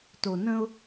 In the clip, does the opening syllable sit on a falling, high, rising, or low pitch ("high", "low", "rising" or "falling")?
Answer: low